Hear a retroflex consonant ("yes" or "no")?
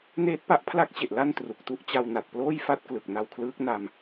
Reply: no